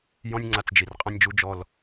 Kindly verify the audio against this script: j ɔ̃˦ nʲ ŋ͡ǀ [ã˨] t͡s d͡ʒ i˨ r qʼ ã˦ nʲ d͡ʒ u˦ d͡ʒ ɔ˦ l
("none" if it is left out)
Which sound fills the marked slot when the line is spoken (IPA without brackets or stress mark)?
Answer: a˨